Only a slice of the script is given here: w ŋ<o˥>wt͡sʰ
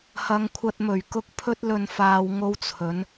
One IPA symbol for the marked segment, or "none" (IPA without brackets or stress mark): o˥